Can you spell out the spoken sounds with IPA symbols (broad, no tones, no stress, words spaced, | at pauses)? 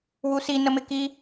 wusi nəmɪki